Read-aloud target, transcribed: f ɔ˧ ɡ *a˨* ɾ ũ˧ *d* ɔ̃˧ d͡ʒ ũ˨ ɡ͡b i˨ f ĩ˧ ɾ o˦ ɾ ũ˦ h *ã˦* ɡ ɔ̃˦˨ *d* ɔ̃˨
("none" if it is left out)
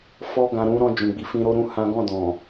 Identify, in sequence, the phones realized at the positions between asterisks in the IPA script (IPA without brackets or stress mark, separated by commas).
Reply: ã˨, ɾ, ã˦, d